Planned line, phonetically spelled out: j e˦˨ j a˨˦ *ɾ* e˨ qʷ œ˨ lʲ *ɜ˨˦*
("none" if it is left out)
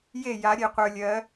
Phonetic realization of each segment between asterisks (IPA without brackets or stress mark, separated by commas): ɾʲ, ɜ˨˦